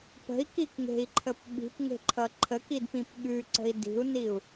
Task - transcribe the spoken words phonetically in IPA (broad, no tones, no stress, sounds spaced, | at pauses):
p ə̤ i̯ k i k ŋ e̤ i̯ ǃʰ ə p ɓ i̤ p ŋ e̤ ǃʰ ʌ ǃʰ ə k i d p ĩ p ɠ ʉ ǀ ə̤ i̯ d i̤ u̯ n i u̯